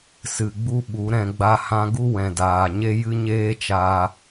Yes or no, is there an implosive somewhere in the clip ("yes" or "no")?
yes